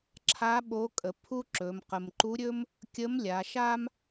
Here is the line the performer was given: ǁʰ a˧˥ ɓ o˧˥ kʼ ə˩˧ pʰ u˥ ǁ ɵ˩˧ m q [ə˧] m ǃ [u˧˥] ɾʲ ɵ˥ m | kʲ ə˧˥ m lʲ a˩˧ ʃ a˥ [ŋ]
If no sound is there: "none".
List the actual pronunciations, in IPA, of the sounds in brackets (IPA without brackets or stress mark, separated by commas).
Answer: ə˩, u˧˥, m